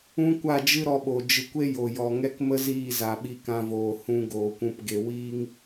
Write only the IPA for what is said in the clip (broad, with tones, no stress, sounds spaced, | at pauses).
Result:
ũ˦ kʷ a˦˨ d͡ʒ ɨ˦ ɾ ɔ˧ ɓ o˨ d͡ʒ ɨ˨ kʷ e˦ j o˨ j ɔ˨ ŋ ɛ˦ k m ə˦ z iː˦˨ z a˨ ɓ i˧ k ã˧ v oː˨ h ũ˧ ɡ oː˨ kʷ ũ˧ p ɡ e˧ w iː˦ ŋ